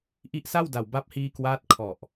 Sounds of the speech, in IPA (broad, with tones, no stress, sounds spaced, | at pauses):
ʔ i˦˥ ʔ s a˥˩ w d a˨˩ w b a˦˥ p̚ h iː˧ k w aː˦˥ t̚ kʰ ɔ˨˩ ʔ